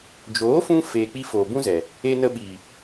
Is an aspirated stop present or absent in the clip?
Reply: absent